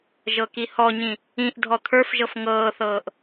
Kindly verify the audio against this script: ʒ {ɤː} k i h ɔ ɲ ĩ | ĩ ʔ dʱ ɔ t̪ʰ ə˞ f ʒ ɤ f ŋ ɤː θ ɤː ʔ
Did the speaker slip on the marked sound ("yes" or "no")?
yes